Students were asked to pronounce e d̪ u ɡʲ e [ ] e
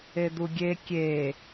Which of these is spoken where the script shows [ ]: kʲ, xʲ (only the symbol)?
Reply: kʲ